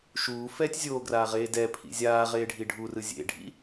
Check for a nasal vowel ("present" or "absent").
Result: absent